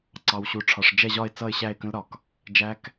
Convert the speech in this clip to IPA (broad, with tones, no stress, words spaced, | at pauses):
ǀɑ˨wɕu˨ʈ͡ʂʰɒ˨ʂ d͡ʒɛ˥˧ʑɒ˥˧ɪ̯ t͡sʌ˥˧ɪ̯ɕæ˥˧ɪ̯kə̃˦˥lɾɒ˨k | d͡ʒæ˦˥k